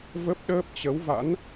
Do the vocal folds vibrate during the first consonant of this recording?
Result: yes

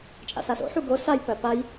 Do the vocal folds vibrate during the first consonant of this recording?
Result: no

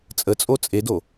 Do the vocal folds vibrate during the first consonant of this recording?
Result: no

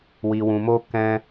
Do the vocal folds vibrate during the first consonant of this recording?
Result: yes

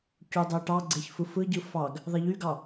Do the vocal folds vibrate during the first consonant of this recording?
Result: no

